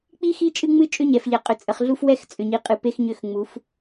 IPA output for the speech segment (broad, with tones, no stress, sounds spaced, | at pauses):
k͡p i˦ x i˦ t͡ʃʼ ɨ˦ ŋ͡m ɨ˦ t͡ʃʼ ʏ˦ ɲ ɛ˨ f ʎ ɛ˨ qʼ ʏ˨ t͡sʼ ə˨ χ ɮ u˦ f w ɛ˦ x t͡sʼ ʏ˨ ɲ i˨ qʼ ɨ˨ p e˦ x ɲ ʏ˦˨ x ŋ͡m u˨˦ f